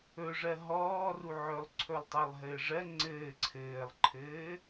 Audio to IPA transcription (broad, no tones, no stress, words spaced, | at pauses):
ɵʐɜ ɦɔːruʕɵlˠ ǀʰɵlˠtˤɜlˠɦɘːʐɜ ŋ͡ǀɘː ǀʰɘːlˠǃʰɘː